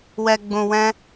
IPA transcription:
wɛ˧ɡ͡bũ˧wɛ̃˦

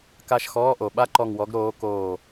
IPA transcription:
ka˦˨ʃxɔː˧˥˧ʔo˨˩ ɓa˥ǃɔ˦˨ŋwɔ˧˥ɡ ɾoː˧˥koː˦˨

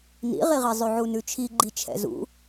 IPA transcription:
nḭʁiʁi zˤʉʕunʉt͡ʃʰi ɡ͡ǃit͡ʃʰɛ̰zṵ

